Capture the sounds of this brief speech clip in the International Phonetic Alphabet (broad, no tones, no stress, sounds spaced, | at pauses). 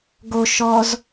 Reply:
ɡ o ʃ ɔ z